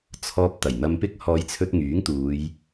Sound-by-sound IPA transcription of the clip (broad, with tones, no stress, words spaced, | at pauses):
t͡sʰɔː˧p̚ t̪ɐ˨˩jn̪ɐ˧mpɪ˥k̚ hɔː˨˧jt͡sʰɵ˧t̚ ŋyː˨˥ŋt̪uː˨˧j